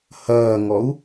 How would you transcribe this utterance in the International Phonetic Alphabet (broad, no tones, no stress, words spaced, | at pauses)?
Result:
hɐːŋɔu̯